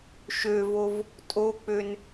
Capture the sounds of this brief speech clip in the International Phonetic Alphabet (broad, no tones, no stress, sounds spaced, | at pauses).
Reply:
ʃ ø v o v | tʼ o k͡p ø n